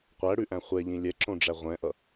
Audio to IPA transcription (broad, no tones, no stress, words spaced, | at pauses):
qʷæɽʉʔæ̃ χʷɛʎĩ lʲɛǁõɖ͡ʐæ ʁʷɛ̃ʔʌ